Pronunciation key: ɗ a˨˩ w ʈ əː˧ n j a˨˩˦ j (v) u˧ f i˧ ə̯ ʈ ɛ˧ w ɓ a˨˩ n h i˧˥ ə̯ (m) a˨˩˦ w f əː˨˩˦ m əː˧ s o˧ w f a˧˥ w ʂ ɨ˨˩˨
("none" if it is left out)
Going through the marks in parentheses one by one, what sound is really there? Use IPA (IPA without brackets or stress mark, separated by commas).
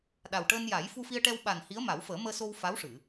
f, m